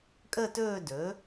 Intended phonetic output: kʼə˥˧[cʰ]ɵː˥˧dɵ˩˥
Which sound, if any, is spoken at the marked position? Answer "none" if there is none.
t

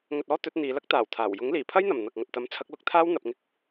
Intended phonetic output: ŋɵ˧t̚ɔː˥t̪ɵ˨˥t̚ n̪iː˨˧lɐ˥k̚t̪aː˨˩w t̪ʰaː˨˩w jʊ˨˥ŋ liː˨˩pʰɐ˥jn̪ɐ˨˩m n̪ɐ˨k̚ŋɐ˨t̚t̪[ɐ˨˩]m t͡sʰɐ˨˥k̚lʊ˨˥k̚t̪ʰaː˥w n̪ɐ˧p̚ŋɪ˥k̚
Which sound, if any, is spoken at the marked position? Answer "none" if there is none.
ɐ˨˥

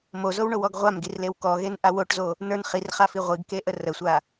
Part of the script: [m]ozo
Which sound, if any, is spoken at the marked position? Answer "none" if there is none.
m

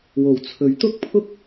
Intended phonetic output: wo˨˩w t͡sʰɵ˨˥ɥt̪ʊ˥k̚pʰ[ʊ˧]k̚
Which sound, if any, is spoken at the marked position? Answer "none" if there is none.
ʊ˥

